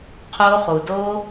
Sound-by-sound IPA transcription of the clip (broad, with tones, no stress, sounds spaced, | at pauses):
qʰ o˦ χ u˨ d o˦